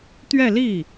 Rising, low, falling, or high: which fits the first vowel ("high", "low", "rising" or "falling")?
falling